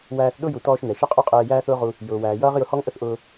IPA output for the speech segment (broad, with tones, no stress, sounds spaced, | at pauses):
w æː˧ θ ɗ ʊ˥ j u˩ t ɔː˧ ʃ n ɛ˩ ʃ ɛ˥ qʼ u˥ qʼ ɛː˧ j æː˥ θ ʊː˥ ʁ u˧ | j ʊː˩ w æː˩ j ʌː˥ ʁ j ʊ˧ h ɔ˥ ŋ ʔ ə˥ θ ʔ ʊː˧